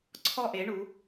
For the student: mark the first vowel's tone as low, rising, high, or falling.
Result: falling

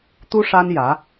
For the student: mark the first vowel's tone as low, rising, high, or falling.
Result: high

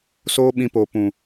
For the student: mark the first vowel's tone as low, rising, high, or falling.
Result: high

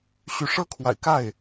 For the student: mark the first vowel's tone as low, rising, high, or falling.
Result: rising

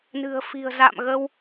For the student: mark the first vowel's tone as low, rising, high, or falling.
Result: low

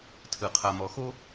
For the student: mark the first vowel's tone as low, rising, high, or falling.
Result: low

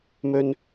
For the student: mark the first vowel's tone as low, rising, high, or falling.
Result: high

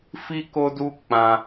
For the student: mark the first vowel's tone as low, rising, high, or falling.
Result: high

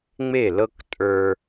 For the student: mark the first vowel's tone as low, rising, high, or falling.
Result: falling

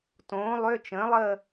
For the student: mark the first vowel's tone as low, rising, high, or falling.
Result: rising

